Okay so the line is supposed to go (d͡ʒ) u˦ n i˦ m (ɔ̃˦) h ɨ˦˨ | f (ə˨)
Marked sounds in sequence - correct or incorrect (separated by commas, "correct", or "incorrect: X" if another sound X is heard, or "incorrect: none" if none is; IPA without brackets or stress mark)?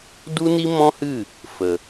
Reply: incorrect: d, correct, correct